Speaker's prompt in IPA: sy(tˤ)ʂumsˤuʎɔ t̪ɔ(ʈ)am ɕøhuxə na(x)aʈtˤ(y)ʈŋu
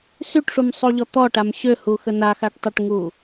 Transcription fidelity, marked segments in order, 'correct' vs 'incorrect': incorrect: ʈ, correct, correct, incorrect: ø

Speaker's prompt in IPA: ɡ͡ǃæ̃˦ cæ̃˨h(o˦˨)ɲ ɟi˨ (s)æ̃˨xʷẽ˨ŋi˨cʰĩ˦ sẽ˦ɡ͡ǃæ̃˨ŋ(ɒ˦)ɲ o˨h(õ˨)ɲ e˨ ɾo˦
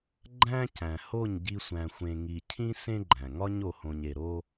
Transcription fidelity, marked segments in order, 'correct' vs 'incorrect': correct, incorrect: sʷ, correct, correct

